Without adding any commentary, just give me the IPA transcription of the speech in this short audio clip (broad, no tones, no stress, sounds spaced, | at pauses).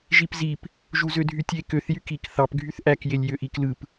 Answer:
ʒ i p z i p | ʒ u z ø dʱ y tʲ e k ø θ j y k i k θ ɑ p ɡʱ y θ ʔ æ k j e lʲ j ø ʔ i k l ɯ p